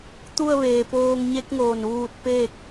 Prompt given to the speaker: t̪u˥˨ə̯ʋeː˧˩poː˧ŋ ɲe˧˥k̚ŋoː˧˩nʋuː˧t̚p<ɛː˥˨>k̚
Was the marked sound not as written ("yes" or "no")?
yes